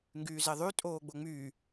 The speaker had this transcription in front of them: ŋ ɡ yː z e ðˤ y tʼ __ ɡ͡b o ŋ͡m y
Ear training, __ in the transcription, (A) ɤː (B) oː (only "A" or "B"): B